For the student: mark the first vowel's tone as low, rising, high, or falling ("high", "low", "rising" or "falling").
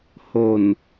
low